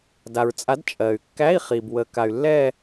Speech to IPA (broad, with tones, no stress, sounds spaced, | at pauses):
d a˩ ɹ t͡sʼ a˩˥ d t͡ʃʼ ɜ˩ y̯ kː æ˧˥˧ i̯ χ i˩ b w ə˩˧ k a˩ y̯ lː ɛ˦˨